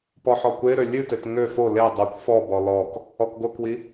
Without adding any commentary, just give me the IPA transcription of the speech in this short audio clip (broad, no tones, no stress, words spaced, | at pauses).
pɔħɔkʷeɾø lʲʉtet ŋø fo le dˤʉkʷ fɔbɔ lɔk | ɔkɡokwi